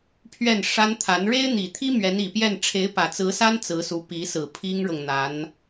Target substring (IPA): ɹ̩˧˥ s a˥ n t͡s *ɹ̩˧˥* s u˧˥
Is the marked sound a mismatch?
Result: no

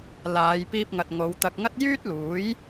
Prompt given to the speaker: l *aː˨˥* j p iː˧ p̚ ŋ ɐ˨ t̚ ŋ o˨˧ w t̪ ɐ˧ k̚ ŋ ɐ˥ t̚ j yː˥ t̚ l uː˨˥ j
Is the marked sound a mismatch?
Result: yes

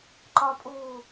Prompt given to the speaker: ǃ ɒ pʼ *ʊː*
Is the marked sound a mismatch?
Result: yes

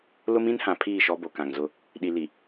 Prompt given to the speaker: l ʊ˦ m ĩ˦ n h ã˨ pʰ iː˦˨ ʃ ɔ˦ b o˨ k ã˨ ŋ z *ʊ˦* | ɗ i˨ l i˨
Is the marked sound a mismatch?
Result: no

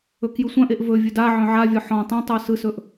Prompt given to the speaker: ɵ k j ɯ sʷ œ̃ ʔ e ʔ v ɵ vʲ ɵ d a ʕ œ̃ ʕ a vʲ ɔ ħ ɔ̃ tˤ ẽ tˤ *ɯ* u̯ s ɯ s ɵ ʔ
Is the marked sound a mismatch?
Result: no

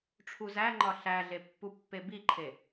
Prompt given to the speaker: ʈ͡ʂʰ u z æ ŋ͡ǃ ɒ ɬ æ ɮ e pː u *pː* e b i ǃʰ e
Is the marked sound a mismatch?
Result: no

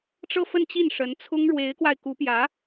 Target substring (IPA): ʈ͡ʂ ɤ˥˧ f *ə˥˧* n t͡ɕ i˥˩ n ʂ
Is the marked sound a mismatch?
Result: no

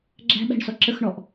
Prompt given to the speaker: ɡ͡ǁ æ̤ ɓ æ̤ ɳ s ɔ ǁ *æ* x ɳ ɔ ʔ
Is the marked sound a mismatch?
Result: yes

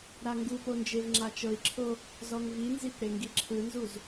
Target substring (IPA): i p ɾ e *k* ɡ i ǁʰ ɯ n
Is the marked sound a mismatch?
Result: yes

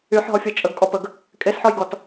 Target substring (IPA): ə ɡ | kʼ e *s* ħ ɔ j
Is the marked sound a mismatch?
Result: no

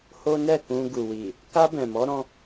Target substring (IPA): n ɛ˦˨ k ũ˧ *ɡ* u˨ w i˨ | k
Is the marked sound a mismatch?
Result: no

